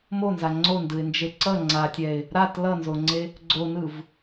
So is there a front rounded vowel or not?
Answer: no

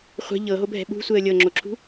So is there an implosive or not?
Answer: yes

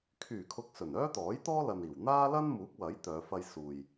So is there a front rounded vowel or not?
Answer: yes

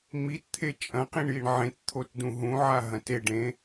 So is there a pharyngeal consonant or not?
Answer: yes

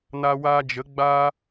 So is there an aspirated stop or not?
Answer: no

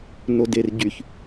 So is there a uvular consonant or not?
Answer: no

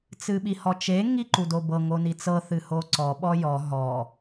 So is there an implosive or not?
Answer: yes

